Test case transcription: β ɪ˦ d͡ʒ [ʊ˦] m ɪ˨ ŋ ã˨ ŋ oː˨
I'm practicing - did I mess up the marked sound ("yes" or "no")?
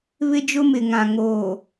no